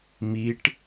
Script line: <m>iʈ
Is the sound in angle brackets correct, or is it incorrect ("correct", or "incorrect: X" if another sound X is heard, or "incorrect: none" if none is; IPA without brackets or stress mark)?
correct